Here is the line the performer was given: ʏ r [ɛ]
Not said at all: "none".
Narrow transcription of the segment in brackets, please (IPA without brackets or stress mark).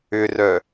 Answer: œ